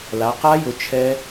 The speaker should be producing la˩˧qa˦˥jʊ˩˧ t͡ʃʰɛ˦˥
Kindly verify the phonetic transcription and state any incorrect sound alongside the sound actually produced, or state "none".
none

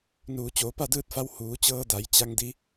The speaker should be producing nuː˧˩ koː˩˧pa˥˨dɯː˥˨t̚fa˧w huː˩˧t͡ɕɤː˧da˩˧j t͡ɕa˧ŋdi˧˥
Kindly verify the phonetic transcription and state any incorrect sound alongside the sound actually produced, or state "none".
k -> t͡ɕ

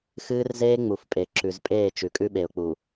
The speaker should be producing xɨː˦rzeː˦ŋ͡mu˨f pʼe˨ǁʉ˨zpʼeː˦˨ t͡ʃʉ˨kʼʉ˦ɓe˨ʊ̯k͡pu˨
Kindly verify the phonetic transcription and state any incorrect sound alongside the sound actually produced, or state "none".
none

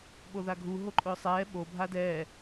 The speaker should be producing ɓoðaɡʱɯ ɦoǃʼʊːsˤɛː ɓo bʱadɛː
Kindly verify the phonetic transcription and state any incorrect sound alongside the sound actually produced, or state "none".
ɯ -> u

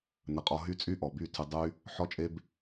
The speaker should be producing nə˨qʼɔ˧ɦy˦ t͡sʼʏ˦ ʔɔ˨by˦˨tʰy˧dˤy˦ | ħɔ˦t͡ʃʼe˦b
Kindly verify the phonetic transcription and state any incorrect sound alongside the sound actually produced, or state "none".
ʏ˦ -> y˦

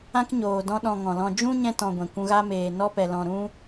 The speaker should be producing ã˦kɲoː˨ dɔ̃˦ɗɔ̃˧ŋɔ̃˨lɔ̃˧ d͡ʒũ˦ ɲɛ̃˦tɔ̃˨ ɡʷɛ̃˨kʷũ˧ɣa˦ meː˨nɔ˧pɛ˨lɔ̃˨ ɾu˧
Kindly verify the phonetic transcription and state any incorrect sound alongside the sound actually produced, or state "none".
u˧ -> ũ˧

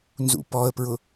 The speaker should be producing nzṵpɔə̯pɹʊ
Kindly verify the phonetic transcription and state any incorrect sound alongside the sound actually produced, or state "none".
none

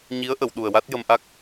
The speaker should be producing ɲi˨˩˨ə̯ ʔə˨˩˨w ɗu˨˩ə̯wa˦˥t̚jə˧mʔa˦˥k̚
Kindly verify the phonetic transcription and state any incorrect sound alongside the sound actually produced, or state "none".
i˨˩˨ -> i˧˥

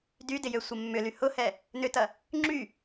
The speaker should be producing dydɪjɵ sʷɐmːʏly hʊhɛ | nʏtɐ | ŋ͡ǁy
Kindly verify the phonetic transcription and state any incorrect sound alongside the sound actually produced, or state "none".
ɵ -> ø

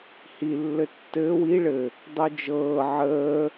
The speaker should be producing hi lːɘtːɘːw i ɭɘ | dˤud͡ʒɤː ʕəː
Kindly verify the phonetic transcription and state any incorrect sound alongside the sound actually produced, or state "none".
none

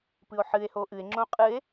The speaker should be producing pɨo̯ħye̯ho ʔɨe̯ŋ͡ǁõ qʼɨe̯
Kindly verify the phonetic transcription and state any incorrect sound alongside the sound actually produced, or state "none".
y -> ɨ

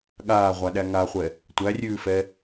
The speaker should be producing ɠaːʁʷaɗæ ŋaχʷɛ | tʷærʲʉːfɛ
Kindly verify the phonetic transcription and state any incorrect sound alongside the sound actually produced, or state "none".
none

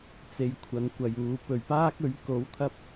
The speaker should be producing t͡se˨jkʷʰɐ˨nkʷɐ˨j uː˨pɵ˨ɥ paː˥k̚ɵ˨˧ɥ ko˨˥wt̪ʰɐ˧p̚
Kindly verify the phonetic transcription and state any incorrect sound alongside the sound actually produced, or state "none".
none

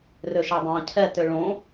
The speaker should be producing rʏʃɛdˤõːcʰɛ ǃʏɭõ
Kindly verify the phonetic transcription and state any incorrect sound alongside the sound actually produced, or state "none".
ǃ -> t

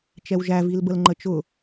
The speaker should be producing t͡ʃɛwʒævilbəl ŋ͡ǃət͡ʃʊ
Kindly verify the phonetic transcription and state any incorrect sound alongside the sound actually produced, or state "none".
none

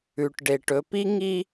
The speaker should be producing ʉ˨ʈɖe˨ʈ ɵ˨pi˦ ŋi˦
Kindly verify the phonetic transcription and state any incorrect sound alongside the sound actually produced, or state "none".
none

